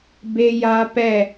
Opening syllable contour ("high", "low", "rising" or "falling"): high